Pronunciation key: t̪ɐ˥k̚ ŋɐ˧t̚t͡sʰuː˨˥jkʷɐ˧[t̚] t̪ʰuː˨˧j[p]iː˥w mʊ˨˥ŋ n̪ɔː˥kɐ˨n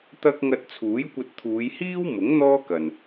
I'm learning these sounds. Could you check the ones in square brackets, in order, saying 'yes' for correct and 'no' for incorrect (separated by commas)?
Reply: yes, no